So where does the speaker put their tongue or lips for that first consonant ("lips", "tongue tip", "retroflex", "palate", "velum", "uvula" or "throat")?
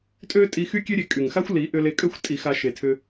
tongue tip